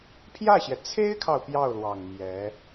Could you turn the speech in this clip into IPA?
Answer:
pʰ j ä˥˩ ɕ j ɛ˩ t͡sʰ e˥ ɪ̯ kʰ ɑ˨ ʊ̯ p j ɑ˥˩ ʊ̯ l w ɑ˨˩ ŋ m j ɛ˧˥

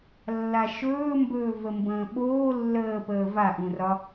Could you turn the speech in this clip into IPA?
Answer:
lː a ʃ ɵː m b ɵː v ə m b ə̃ː ɓ oː lː əː p əː v a ʔ ũ r ɒ

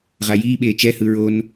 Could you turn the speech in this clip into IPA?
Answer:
ʁ a j iː ɓ eː t͡ʃ ɛ h ɯ ɹ o n

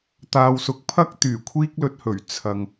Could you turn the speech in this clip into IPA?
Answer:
t̪ aː˧ w s ʊ˨˥ k̚ pʰ ɐ˥ k̚ t̪ yː˨˩ kʷʰ iː˥ k̚ l ɵ˧ t̚ h ɵ˨˩ ɥ t͡sʰ ɐ˨ ŋ

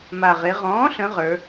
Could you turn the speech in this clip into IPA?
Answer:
m a˨˩ ʁ e˩˧ ʁ ɔ̃ː˩˥ ɬ ə̃˩˧ ʁ ə˞˩˧

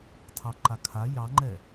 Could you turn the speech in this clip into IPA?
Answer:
tʰ ɑ ǃ a kʰ a j ɑ ŋ͡ǃ ɛ

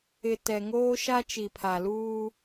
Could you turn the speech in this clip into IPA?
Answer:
ɪ˨ t ɛ˨ ŋ oː˦ ʃ a˦ t͡ʃ i˨ pʰ a˨ l uː˦

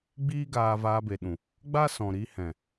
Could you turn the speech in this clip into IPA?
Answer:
ɡ͡b iː˦ ɡ aː˧ v aː˧ b e˨ ɗ ũ˨ | ɡ͡b a˦ s ɔ̃˨ ɾ i˧ h ɛ̃˨

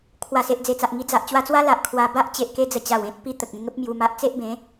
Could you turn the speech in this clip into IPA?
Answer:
kʰ w a˨˩ s e˨ ʔ d͡z e˨˩ t͡s a˨ ʔ ŋ i˧ d͡z a˨ ʔ t͡ɕ w a˧ t͡s w a˦ l a˨ ʔ kʰ w a˧ b a˦ ʔ t͡ɕ e˨ ʔ k e˧ d͡z ə˨˩ t͡ɕ a˨˩ w ẽ˦ t̚ p i˧ t̪ ə˨ k̚ ẽ˧ ŋ ə˦ p̚ m j u˧ m a˦ ʔ t͡s e˦ ʔ b ẽ˨˦

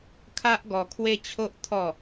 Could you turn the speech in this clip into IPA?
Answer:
kʰ a˦ ʔ ɡ ɔ˧ kʰ w e˦ t͡ɕʰ o˦ ʔ t̪ʰ ɔ˥˧

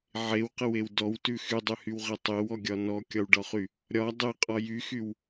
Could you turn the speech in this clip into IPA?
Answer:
ʕ e w q ə w e w d ɔ w t ʉ x y dˤ y h y w ʁ ɛ tˤ e w ɔ ɡʲ ɒ n ɔ kʲ ɒ w ɖ ɒ χ y | ɾʲ ɒ dˤ e qʼ ɒ j y x y w

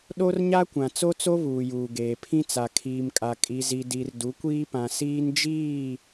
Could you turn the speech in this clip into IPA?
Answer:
ɗ o˦ r ɲ a˦ kʷ ã˨ t͡s o˦ t͡s o˦ β uː˨ j uː˨ ɡ eː˨ pʰ ĩ˦ t͡s a˨ kʰ iː˨ m kʼ a˨ kʼ i˨ z i˨ d i˨ r d u˨˦ kʷ iː˦ p ã˨ s iː˦ n d͡ʒ iː˦˨

